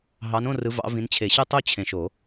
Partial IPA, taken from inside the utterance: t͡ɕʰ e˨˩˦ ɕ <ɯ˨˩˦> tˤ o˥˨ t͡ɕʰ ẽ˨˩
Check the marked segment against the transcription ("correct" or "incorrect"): incorrect